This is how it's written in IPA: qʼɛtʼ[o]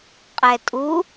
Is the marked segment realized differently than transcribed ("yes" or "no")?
yes